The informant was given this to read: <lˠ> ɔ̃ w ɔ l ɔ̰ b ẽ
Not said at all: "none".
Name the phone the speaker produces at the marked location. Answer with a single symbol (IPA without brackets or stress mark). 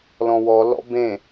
l